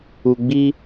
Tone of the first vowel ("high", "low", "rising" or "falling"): low